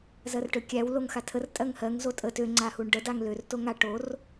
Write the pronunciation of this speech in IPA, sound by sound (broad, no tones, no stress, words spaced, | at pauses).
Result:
zɜrʈøkʲæw loŋxatʰər tʼɜŋhɜŋ zotʼə tø ŋ͡ǀahuɳɖə daŋlør toŋa ʈor